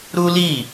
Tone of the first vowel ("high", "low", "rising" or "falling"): high